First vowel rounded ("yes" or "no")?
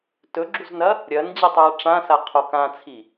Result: yes